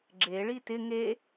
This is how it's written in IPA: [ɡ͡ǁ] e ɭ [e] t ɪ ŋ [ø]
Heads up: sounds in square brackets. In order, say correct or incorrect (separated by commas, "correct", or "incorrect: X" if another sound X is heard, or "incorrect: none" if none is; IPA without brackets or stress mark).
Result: correct, incorrect: i, incorrect: e